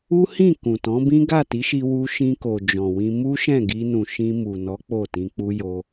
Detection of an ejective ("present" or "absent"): absent